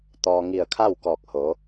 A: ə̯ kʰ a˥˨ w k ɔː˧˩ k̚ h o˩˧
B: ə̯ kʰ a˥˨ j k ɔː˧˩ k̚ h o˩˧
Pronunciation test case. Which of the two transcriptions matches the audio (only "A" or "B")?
A